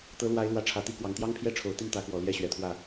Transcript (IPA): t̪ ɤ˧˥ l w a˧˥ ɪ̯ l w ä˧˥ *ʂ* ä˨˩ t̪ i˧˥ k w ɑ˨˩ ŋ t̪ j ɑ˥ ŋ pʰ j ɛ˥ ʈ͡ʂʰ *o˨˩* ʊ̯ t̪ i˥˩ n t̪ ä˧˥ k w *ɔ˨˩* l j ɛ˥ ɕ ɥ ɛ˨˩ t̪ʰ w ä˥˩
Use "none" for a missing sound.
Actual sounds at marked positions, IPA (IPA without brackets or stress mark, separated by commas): ʈ͡ʂʰ, o˨˩, ɔ˨˩